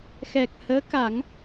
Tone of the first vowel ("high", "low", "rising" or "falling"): low